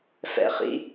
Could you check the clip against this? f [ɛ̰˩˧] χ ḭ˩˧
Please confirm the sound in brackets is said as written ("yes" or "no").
yes